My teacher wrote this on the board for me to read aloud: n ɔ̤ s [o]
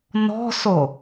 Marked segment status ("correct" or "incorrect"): correct